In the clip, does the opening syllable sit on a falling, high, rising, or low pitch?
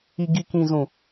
low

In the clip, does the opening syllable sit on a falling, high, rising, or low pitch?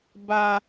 low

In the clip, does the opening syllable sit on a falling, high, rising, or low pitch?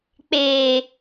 low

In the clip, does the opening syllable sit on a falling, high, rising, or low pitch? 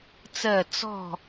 falling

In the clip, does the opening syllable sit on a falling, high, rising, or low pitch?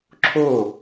falling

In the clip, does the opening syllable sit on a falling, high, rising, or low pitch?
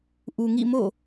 low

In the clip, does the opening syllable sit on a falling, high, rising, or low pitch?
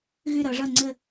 falling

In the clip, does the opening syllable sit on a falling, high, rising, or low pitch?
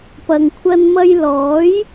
low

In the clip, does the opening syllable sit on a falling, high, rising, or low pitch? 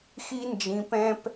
high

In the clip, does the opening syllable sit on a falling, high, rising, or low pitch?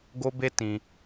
high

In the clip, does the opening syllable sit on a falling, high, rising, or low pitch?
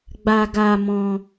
high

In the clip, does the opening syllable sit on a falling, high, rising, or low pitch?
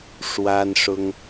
high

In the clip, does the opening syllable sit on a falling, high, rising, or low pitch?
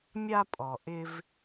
high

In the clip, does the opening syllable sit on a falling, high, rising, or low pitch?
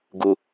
low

